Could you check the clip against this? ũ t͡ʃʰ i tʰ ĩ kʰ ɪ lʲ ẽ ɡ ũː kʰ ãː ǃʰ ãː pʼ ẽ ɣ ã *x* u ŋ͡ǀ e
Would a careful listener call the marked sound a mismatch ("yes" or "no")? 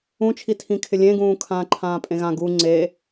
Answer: yes